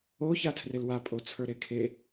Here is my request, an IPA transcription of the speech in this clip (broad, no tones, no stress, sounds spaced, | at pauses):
o ç a tʰ r e l w a pʼ o t͡sʰ ə˞ ɾ e kʰ e